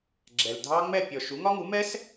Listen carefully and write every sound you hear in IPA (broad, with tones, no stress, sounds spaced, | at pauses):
ɡ͡ǁ ɛ˨ l dʱ ɑ˥ ŋ͡m ɛ˥˨ pʲ ɔ˨ ʃ u˩˥ ŋ ɒ˥ ŋ u˩˥ m ɛ˥ s